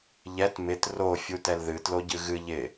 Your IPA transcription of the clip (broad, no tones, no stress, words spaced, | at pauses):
ʎɛt mɪt ro fʲutɛlðɨ tloɟɨɣɨ ʎɪ